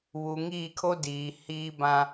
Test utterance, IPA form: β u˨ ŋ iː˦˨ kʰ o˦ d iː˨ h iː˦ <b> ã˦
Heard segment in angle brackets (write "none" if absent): b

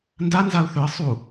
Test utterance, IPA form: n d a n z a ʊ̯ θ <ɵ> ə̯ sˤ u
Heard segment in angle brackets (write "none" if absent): ɵ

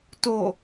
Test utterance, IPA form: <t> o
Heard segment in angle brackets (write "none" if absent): t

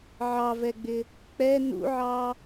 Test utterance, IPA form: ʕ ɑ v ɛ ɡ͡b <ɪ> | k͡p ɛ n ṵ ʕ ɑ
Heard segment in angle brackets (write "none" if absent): ɪ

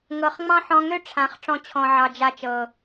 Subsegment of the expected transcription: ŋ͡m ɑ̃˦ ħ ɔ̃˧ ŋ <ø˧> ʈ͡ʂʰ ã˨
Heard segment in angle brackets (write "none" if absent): ø˦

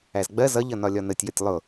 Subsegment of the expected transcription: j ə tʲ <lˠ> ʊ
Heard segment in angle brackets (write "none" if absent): lˠ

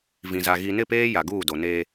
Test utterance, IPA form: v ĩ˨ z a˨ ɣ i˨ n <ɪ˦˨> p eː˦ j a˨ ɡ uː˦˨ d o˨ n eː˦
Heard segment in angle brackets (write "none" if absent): ɪ˦˨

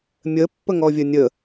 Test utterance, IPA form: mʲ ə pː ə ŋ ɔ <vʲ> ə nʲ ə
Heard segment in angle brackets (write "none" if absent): vʲ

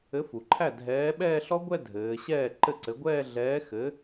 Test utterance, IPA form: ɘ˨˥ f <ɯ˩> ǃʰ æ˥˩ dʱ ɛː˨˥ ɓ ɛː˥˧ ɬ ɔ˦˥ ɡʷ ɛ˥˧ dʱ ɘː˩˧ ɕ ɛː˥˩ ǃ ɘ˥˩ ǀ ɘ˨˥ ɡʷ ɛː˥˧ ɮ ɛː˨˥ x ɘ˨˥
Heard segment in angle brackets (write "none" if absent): u˩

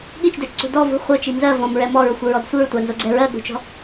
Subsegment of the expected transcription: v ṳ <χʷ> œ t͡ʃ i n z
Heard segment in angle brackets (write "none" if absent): χʷ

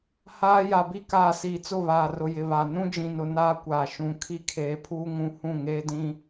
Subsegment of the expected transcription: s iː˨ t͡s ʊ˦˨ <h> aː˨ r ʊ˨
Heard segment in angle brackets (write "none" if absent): β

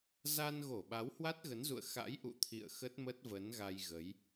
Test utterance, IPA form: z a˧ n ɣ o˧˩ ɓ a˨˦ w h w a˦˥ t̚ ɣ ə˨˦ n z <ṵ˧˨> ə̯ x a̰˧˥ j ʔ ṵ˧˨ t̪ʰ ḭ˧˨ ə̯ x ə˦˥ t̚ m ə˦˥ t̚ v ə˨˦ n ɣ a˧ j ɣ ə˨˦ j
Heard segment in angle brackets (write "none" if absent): ṵ˧˨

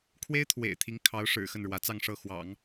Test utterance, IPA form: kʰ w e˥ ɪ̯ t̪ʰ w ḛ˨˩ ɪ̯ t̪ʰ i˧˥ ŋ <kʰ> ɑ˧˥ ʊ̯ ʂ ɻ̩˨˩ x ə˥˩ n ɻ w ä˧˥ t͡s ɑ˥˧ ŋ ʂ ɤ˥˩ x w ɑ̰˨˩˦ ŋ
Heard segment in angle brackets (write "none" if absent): kʰ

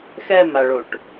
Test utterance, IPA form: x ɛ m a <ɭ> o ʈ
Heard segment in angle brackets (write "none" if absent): ɭ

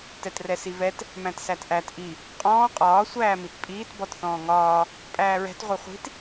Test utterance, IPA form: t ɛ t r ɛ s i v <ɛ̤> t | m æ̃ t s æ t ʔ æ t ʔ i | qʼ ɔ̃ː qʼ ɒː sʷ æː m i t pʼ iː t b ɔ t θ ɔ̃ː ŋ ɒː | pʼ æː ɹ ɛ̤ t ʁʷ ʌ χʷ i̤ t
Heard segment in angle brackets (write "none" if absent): ɛ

